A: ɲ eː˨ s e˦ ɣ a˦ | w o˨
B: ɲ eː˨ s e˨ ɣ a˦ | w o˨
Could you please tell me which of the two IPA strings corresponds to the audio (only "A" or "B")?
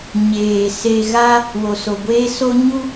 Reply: B